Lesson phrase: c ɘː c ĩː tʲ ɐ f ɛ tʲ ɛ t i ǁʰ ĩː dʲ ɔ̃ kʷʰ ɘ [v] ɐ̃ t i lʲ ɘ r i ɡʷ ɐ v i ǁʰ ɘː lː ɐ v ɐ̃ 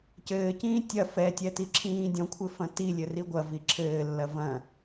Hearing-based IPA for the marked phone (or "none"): f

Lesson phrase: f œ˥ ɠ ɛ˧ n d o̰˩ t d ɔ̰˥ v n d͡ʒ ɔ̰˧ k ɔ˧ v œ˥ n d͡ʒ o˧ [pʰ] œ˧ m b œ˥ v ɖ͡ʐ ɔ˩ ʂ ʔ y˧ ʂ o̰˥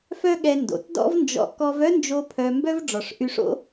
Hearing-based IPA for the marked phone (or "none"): pʰ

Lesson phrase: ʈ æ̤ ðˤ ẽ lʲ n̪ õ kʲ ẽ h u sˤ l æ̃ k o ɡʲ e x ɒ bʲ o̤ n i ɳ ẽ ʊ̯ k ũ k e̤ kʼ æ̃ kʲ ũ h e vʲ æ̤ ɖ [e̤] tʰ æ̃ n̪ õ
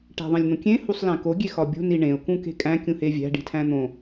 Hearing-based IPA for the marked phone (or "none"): i̤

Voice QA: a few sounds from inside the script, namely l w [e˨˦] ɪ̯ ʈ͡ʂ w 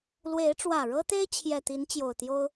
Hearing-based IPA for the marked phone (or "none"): e˨˦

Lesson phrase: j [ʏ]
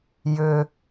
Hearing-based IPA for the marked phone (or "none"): ʏ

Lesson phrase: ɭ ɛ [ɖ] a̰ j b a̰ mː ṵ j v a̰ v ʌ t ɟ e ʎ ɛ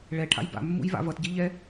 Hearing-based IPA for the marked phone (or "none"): ʈʰ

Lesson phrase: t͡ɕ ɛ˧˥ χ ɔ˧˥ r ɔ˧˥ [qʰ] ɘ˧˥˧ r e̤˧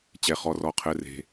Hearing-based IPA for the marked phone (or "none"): qʰ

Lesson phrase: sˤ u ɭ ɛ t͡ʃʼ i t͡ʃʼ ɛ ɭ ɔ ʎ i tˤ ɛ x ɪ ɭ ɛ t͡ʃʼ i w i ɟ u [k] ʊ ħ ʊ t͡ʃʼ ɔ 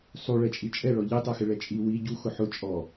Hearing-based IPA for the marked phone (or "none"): x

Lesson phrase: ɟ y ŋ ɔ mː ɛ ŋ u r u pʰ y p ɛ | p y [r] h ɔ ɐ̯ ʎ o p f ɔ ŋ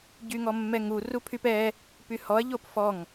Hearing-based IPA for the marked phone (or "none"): none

